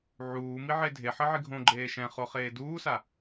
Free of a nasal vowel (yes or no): no